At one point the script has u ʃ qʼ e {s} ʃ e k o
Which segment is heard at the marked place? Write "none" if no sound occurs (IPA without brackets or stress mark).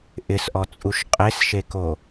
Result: s